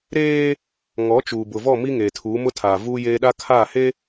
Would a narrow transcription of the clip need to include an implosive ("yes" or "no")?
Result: yes